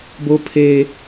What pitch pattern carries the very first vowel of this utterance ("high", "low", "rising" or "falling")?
high